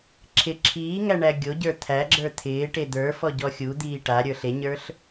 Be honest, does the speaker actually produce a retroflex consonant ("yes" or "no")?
yes